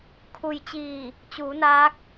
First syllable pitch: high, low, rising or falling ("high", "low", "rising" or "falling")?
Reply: low